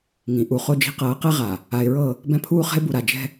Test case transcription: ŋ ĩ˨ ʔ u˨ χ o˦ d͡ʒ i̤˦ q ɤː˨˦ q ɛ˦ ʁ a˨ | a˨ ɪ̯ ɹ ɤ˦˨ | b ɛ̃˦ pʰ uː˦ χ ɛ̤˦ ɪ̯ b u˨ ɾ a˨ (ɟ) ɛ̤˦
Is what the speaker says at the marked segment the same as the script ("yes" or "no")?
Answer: no